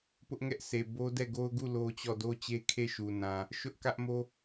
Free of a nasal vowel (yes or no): no